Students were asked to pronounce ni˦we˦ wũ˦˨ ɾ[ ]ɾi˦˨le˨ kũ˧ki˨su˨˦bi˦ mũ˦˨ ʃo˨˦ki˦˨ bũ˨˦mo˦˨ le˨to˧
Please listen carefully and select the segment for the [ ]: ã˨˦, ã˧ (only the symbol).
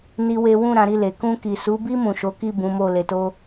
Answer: ã˨˦